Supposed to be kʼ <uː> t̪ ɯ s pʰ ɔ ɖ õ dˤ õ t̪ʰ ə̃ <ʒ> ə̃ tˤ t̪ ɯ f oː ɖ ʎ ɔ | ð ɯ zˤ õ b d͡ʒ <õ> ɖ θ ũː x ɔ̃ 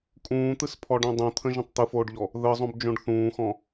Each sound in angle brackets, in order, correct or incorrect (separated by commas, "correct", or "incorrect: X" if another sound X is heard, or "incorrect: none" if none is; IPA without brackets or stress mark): incorrect: ũː, correct, correct